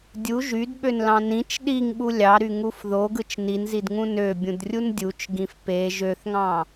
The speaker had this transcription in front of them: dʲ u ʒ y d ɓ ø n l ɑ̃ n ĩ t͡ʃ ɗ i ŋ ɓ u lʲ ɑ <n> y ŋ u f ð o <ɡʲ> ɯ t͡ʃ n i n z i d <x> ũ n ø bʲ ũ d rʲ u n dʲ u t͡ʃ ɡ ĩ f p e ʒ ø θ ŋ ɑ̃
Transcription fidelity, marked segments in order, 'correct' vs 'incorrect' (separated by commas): incorrect, incorrect, incorrect